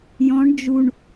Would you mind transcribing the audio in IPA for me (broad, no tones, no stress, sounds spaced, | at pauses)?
j ɔ̃ ɳ d͡ʒ u ɳ